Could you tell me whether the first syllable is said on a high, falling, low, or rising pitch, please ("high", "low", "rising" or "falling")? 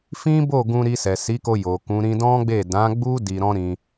high